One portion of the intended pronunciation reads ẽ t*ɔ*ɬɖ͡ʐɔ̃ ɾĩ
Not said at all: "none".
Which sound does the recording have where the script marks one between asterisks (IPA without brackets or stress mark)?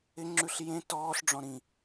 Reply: ɔː